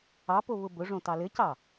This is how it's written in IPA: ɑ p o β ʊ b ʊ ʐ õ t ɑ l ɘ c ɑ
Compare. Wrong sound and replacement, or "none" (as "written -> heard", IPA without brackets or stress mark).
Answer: none